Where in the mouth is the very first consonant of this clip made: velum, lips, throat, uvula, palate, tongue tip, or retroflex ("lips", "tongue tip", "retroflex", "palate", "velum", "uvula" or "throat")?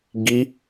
velum